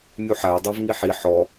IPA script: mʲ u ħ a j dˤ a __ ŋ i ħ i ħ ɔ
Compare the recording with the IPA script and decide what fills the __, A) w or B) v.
B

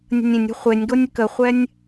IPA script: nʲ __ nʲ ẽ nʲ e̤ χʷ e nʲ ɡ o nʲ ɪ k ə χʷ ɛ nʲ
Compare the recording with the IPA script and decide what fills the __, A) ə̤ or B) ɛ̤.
A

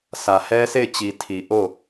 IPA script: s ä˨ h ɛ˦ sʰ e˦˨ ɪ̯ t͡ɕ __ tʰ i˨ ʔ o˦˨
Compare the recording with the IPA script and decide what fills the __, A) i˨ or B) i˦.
A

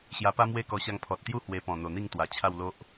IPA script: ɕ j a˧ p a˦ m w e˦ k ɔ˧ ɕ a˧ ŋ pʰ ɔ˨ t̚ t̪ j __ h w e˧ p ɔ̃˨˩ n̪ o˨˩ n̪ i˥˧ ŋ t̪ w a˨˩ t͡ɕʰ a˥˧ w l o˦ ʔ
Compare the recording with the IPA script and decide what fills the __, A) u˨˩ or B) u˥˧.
B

